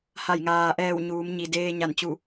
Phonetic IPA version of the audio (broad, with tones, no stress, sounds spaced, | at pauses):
h a˧˩ j ŋ aː˩ ʔ ɛː˧˩ w ɲ uː˩˧ m ɲ i˩ d eː˧ ɲ a˧˩ n t͡ɕ u˧˩